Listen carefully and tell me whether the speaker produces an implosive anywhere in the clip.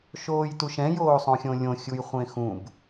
no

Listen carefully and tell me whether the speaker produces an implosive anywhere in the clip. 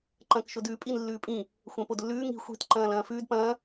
no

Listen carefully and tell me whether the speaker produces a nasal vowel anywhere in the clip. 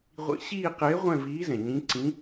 yes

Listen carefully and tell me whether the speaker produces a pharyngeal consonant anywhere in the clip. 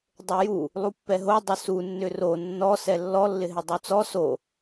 no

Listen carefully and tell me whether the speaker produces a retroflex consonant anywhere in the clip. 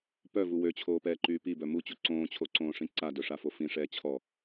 yes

